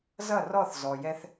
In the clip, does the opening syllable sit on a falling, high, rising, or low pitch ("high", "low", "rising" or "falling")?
falling